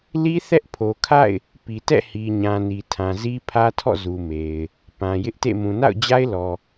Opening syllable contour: high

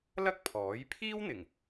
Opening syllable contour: high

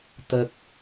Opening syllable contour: low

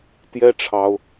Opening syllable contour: high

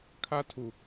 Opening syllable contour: high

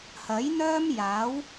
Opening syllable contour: rising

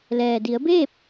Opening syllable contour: low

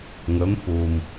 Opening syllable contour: rising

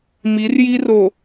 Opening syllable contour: rising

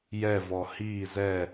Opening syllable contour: falling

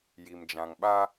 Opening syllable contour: low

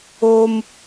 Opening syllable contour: high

